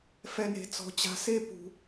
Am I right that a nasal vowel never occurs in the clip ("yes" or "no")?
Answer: yes